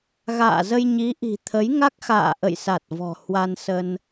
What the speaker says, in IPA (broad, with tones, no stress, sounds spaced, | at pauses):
ɣ a̰ː˧˨ z ə˧ j ɲ i˨˦ ʔ i̤˨˩ t̪ʰ ə˨˦ j ŋ a˦˥ k̚ x a̰ː˧˨ ʔ ə̰˧˨ j s a˨˩ t̚ v ɔ̤˨˩ h w a˧ n s ə˧ n